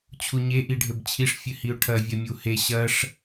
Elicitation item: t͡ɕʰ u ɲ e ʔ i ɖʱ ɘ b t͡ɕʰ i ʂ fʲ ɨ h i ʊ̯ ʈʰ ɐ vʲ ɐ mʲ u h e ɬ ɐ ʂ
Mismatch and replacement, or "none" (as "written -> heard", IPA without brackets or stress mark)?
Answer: ɬ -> ɕ